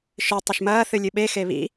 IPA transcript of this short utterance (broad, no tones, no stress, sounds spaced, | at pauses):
ʃ ɨ tˤ ɘ ʃ m ɐː θ ɨ lʲ ɨ ɓ e x e β ḭ